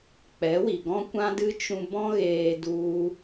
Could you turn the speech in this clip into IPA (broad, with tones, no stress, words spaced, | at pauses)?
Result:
k͡pɛ˨˦wi˨ ɡɔ̃˦kʷã˦dɨ˦ t͡ʃũ˧bɔ̃˦ɣeː˧ du˦